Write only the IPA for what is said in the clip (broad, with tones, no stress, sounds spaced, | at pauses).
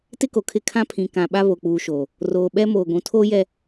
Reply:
t ɪ˦ k o˨ kʰ ɪ˦˨ kʰ ã˦ pʰ ĩ˨ k ã˨ ɓ a˦ β o˨ k͡p uː˨ ʃ oː˨ | r oː˨ ɓ ɛ˦ m oː˨ ɡʷ ũ˨ tʰ oː˦ j ɛ˦